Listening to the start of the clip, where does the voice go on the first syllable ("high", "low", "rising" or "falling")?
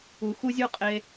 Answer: low